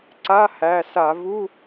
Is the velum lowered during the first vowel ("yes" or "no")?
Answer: no